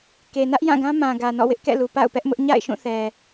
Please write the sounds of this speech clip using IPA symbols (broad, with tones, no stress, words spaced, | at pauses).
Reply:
ke˨nä˦ʔjã˦˨ɡã˦ mã˨ ɡä˨nɔ̰˦˨wɪ˦ʔkɛ̰˦˨ lu˨ pa̰˦˨ʊ̯pɛ˦ʔmʊ˦ʔ ɲa̰˦˨ɪ̯ʃũ˦˨θɛ˨